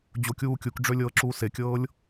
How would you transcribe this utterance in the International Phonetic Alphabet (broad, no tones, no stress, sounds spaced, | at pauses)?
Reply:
d͡ʑ o kʲ uː kʲ u k ɖ͡ʐ ø lʲ ɤː ǁ uː s e kʲ ɤː lʲ